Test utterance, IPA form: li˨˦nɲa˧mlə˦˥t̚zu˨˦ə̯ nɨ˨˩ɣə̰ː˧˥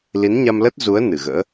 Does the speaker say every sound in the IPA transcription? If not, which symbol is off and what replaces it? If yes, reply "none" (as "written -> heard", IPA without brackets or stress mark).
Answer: none